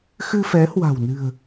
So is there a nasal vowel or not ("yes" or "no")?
no